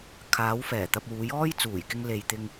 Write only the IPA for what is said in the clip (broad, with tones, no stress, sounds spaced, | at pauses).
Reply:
kʰ aː˨˥ w f ɛː˨˩ t̪ ɐ˨ p̚ w uː˨˥ j ɔː˥ j t͡s uː˨˩ j k ɪ˧ ŋ l e˨ j t̪ ɪ˧ ŋ